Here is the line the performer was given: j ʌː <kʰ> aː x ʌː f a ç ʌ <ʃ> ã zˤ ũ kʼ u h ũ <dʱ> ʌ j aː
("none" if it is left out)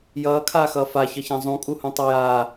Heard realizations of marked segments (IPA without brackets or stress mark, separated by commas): kʰ, ç, tˤ